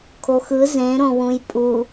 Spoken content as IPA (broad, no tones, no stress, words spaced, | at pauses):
kʰoxɯ zẽɾõwũj pʼu